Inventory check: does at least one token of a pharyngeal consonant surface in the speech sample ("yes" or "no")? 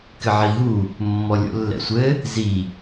yes